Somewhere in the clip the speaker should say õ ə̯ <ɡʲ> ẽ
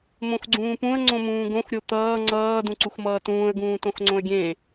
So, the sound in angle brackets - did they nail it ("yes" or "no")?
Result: yes